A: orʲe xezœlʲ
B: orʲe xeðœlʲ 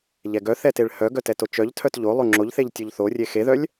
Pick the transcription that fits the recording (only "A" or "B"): B